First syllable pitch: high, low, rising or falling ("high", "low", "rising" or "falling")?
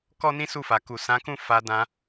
high